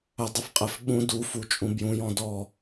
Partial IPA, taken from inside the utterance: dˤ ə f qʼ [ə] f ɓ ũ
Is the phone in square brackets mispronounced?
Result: no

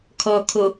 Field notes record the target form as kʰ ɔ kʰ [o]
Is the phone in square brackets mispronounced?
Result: no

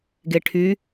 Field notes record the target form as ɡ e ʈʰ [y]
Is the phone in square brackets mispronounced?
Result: no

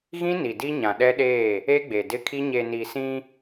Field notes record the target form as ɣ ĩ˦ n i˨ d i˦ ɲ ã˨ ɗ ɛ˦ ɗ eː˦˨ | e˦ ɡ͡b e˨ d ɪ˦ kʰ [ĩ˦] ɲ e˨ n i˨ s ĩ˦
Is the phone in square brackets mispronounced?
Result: yes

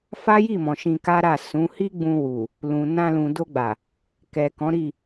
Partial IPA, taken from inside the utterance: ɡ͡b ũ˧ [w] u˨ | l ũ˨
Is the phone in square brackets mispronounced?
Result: no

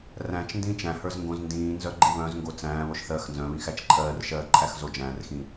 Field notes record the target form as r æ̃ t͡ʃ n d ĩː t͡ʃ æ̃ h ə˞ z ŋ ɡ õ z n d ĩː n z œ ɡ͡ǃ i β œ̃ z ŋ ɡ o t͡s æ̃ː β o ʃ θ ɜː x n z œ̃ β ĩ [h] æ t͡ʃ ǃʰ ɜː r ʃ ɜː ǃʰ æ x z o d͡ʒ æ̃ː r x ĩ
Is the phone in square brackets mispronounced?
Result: yes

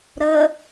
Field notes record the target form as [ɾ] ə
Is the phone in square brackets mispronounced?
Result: no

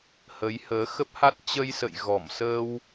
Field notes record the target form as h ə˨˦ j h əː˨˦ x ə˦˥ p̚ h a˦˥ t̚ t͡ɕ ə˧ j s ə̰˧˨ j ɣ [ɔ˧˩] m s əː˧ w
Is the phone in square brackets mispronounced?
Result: no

